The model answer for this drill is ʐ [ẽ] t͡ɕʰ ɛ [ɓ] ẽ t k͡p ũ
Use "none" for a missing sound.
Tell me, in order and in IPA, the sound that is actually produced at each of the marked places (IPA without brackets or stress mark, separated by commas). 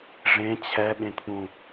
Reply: ẽ, ɓ